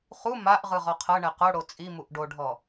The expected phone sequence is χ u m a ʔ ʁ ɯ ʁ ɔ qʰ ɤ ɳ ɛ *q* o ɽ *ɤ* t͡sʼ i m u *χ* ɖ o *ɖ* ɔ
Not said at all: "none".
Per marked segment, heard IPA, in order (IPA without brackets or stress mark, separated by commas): q, o, ʔ, ɖʱ